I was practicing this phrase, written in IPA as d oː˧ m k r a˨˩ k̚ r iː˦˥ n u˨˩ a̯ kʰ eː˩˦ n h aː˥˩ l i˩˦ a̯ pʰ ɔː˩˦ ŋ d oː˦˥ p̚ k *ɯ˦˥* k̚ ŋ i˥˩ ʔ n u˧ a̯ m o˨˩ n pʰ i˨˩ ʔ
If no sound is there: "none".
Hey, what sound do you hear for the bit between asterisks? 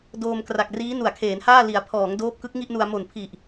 ɯ˦˥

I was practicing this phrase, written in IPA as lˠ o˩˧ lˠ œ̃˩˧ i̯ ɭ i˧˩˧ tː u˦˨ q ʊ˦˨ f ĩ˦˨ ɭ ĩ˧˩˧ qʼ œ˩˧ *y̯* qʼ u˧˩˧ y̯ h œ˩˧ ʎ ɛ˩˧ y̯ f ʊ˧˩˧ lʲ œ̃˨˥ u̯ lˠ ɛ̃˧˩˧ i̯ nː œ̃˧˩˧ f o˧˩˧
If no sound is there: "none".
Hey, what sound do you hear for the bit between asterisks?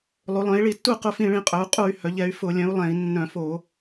u̯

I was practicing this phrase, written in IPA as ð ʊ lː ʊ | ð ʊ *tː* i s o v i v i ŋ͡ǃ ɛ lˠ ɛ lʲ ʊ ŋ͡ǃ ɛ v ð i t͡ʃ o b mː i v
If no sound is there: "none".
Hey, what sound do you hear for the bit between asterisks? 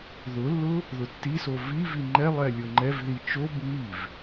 tː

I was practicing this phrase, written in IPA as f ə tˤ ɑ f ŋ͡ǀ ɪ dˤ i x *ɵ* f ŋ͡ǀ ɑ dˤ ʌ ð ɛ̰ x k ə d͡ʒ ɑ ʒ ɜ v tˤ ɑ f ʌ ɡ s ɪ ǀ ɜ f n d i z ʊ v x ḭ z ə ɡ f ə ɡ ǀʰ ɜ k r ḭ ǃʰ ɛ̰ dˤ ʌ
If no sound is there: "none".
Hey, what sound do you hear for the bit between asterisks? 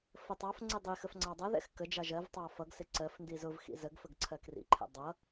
ə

